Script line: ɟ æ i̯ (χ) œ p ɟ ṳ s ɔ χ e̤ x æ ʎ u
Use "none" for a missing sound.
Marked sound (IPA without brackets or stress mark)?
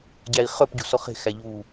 χ